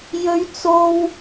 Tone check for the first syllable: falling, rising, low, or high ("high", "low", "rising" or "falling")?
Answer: high